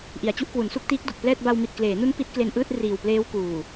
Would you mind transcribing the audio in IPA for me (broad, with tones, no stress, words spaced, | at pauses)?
ʔi˩˦a̯t͡ɕu˦˥ʔkwu˩˦nsu˥˩k̚ tiː˦˥k̚du˨˩k̚plɛː˥˩t̚ ba˧wmi˨˩t̚kleː˩˦nu˦˥n pi˦˥t̚ kle˧nʔɯː˥˩t̚ riː˨˩wpleː˦˥wkuː˨˩